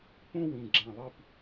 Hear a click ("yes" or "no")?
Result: yes